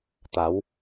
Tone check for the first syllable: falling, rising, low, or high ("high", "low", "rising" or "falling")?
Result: rising